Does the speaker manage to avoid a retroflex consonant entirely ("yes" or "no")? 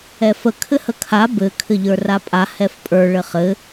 no